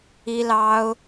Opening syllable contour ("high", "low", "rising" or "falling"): high